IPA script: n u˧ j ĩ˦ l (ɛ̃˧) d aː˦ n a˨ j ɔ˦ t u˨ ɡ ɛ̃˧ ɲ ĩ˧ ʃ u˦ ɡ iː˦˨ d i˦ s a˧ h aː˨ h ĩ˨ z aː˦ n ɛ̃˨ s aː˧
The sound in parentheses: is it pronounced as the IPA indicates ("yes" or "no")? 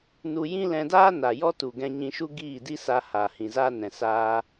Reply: yes